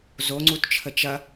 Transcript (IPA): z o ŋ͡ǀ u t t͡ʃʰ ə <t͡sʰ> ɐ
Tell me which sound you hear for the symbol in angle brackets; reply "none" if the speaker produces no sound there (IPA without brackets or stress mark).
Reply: t͡ʃ